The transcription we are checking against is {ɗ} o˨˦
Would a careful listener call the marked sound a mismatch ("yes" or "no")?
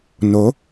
yes